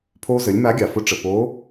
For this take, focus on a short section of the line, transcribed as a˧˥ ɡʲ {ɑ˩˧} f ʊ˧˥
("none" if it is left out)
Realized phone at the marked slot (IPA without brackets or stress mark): ɑ˩